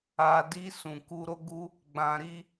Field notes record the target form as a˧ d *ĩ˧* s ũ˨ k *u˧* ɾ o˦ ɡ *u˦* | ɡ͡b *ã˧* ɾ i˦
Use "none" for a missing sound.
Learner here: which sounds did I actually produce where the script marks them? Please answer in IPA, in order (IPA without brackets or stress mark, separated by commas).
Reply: i˧, u˧, u˦, ã˧